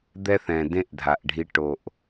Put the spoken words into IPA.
d̪ ɛ˦ θ ɛ̃˨ d ẽ˦ ʔ dʱ a˨ ʔ ɖʱ i˧ ʈ o˨ ʔ

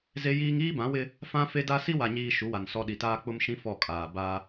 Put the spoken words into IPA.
z e˦ j iː˦ ŋ iː˦ b ã˨˦ w ɪ˦ | f ã˦ f e˦ d a˦ s i˦ w a˨ ɲ iː˨ ʃ u˨˦ w a˨ n s ɔ˨ ɗ i˨ t aː˦ k͡p ʊ˦ m ʃ ĩ˦ f ɔ˦˨ kʼ aː˨ b a˦

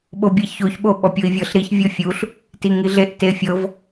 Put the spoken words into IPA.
ɓ o bʲ ɛ ç o ç ɓ o ɓ ɔ pʲ o i̯ vʲ ɤ ɬ ɾ i ç vʲ ɤ fʲ u ɬ | t i ŋ i ɮ e ʔ t e fʲ ɤ v

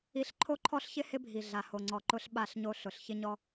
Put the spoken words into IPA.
i˦ ɬ ǃʰ o˦ ǃʰ ɔ˦ ɬ ç ɪ˦ h ɪ˦ bʱ i˨ ɮ a˨ h o˨ ŋ͡ǀ ɔ˨ ǃ ʊ˦ ɬ ɓ a˦˨ ɬ ɲ o˦ ɬ ʊ˨ ɬ ç ɪ˦ ɲ ɔ˦

